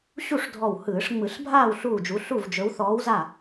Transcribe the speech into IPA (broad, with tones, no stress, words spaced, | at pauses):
ɕu˥˨ʂdʱɔ˧˩w hɯː˧˩˧ʂŋ͡mɯ˧˩˧ɬbʱaː˥˨w ɬuː˥˨d͡ʒu˧˥ ɬu˥˨vd͡ʒɵ˧˥w θɔː˧˥wza˥˨